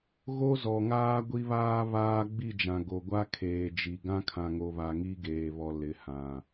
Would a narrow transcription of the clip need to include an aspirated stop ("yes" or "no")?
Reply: yes